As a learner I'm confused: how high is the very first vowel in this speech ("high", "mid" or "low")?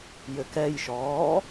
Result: mid